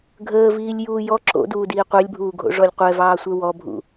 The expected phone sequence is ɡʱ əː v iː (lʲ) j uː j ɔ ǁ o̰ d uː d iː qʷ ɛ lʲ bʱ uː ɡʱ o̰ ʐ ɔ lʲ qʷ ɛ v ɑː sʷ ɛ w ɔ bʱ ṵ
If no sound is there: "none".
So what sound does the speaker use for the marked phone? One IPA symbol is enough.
lʲ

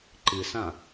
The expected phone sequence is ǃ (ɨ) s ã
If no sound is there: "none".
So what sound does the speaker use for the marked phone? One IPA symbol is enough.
ɨ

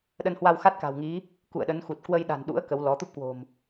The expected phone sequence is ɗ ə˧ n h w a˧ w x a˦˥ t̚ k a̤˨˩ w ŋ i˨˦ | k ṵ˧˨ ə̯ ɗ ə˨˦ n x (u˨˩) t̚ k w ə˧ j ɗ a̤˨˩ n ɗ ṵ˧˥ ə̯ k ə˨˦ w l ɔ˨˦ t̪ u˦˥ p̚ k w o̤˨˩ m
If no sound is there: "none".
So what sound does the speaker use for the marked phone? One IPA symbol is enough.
u˨˩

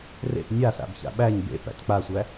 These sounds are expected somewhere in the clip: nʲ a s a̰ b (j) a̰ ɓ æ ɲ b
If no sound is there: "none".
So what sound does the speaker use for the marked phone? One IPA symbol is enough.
ç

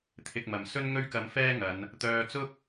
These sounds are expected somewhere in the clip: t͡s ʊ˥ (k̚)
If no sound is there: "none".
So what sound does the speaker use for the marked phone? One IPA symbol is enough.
k̚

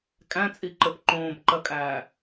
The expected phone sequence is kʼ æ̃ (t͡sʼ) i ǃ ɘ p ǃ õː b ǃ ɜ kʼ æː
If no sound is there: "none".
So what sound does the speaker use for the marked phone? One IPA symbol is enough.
t͡sʼ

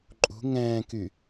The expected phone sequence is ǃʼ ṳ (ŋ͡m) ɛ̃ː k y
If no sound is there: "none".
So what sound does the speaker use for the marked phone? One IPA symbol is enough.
ŋ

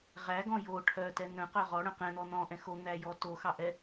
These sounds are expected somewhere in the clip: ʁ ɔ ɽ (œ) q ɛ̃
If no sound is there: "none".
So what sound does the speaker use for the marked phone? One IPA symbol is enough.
œ̃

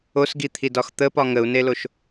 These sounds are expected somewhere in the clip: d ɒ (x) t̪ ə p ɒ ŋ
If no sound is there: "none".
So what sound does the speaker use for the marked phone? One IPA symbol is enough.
x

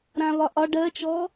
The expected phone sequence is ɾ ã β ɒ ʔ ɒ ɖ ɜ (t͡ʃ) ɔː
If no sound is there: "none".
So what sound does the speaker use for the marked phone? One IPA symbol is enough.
t͡ʃ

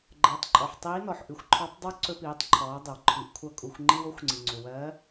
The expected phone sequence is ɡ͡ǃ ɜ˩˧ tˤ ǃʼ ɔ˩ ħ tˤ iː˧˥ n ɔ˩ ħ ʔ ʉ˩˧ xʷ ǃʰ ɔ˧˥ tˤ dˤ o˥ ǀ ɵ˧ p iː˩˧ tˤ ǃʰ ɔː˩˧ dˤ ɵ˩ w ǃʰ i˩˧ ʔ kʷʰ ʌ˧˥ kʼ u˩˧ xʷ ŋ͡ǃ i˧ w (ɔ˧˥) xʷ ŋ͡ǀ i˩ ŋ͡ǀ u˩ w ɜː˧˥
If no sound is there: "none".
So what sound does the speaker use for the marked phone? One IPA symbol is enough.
o˧˥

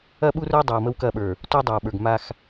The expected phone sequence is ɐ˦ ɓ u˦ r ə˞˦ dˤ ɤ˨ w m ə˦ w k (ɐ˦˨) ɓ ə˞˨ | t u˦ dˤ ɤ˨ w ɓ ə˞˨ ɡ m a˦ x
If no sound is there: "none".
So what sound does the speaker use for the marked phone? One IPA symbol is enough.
ɐ˦˨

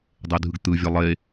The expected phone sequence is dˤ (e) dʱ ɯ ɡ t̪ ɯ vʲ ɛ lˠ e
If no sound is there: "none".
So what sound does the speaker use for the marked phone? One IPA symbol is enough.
e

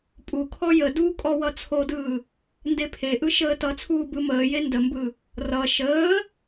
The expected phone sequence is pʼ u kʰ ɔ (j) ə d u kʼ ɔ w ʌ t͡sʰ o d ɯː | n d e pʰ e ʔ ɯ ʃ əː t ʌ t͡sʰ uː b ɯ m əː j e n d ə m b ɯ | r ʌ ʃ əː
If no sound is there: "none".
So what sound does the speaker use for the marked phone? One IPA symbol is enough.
j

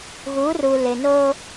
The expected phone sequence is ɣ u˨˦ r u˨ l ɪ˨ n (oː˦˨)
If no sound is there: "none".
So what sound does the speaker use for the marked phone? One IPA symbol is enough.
oː˦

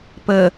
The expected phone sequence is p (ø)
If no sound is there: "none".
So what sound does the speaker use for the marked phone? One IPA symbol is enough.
ə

